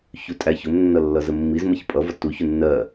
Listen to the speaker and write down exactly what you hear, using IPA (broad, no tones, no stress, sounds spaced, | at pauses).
ç u tʼ æ ç ʊ m nː ʌ lː ʌ z ə mː i z m ʌ ç pʼ ʌ v ɒ t u ç u nː ɜ